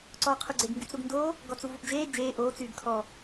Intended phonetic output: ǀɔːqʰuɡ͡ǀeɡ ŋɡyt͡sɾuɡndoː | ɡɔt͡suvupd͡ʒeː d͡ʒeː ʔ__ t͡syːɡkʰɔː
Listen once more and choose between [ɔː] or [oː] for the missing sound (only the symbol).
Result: oː